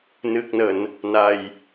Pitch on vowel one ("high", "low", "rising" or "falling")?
low